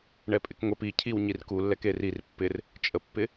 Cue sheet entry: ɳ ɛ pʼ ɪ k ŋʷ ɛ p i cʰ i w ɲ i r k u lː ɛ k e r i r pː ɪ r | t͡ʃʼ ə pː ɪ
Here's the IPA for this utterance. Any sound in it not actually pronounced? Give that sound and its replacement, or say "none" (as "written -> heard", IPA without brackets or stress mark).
none